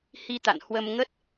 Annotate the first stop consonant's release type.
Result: plain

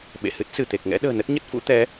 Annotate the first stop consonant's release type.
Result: implosive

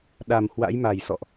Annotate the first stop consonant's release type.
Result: implosive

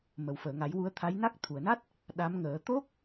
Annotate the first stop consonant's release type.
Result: aspirated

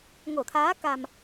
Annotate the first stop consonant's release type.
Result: aspirated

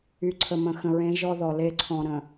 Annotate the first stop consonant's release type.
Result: click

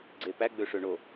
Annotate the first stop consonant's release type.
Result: click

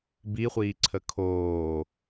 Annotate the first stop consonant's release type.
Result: plain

